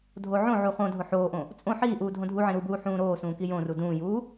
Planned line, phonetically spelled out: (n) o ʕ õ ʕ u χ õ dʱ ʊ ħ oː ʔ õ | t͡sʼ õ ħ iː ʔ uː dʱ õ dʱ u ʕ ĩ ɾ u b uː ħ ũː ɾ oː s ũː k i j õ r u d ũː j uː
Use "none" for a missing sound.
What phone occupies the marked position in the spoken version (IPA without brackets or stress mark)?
dʱ